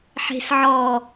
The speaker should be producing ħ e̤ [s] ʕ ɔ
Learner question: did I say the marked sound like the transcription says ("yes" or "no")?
yes